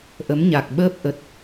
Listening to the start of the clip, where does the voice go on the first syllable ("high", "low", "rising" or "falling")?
rising